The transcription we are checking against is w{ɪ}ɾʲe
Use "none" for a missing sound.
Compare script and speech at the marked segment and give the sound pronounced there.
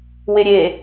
ɪ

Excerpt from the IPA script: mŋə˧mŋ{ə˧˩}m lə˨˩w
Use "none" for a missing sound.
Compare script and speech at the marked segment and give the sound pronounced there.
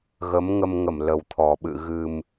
ə˧˩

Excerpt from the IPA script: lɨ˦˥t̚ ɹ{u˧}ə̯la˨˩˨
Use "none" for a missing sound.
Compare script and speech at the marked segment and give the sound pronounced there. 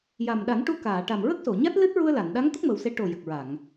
u˧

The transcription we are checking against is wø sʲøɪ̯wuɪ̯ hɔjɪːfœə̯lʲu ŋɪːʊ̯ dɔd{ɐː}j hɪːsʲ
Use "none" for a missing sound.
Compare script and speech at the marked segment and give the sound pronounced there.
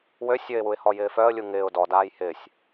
aː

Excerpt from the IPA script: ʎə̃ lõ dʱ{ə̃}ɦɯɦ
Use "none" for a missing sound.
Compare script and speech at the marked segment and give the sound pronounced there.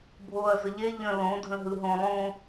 ə̃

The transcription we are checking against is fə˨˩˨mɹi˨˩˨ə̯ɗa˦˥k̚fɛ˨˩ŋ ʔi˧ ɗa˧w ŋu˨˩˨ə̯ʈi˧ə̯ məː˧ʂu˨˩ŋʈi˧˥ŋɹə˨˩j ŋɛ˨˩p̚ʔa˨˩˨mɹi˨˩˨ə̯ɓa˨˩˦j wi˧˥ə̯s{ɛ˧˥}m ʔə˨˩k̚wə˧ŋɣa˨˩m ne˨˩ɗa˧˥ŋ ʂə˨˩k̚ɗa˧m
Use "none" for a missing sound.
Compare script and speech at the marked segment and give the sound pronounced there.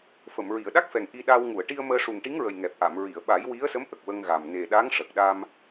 ə˧˥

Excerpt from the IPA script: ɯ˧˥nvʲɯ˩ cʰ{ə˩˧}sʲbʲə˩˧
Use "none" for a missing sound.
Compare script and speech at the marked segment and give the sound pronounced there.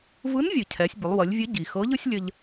ɛ˩˧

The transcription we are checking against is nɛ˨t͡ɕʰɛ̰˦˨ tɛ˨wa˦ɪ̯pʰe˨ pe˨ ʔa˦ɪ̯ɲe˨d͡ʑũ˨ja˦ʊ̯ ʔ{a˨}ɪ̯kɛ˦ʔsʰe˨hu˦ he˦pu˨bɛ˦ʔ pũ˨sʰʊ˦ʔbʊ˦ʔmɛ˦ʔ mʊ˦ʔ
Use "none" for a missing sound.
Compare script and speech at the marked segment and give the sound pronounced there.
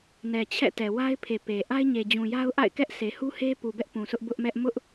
a̰˦˨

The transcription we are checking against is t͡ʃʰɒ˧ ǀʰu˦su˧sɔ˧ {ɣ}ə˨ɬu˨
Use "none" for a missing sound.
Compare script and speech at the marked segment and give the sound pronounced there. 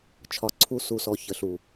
ç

